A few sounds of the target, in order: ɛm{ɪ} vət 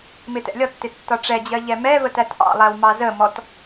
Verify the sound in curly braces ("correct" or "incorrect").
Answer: incorrect